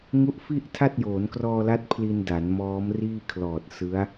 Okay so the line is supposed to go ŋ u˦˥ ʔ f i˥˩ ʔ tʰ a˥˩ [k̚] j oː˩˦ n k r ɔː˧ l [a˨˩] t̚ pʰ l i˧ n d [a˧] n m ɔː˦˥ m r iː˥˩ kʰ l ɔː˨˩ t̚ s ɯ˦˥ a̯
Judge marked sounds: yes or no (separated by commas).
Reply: no, no, no